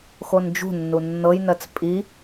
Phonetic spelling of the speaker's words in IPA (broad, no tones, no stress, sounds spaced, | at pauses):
x o n d͡ʒ ṳ nː u nː ɤ j n ɜ t͡s pʼ i